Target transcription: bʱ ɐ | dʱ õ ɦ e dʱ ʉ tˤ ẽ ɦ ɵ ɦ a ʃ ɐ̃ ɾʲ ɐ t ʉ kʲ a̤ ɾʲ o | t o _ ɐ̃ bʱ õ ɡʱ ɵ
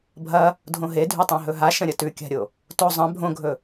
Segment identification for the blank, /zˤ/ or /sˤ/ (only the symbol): zˤ